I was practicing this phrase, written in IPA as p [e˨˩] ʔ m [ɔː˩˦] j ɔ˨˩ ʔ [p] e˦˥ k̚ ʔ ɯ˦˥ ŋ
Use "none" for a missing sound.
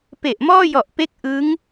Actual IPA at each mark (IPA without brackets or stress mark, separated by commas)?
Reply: e˨˩, ɔː˥˩, p